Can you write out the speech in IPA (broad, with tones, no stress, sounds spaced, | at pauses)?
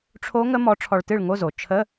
ʈ͡ʂʰ o˦˥ ŋ ə˦˥ m ɔ˨˥ ʈ͡ʂʰ ɔ˧ ɭ t ɨ˥˨ ɭ ŋ o˧˥˧ z o˩ t͡ʃʰ ə˧˥˧